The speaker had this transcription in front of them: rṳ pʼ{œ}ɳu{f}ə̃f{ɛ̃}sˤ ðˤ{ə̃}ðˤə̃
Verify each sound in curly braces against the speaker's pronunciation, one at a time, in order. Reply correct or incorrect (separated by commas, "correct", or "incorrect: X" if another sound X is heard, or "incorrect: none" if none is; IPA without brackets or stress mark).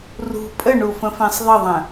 incorrect: ə, correct, correct, incorrect: ə